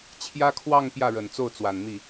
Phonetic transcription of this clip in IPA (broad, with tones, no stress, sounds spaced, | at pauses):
t͡ɕʰ j ä˥ kʰ w ɑ˥˧ ŋ p j ä˥˩ ɻ ə˨˩ n t͡s o˥˩ ʊ̯ t͡s w a˨˩ n n̪ i˥˩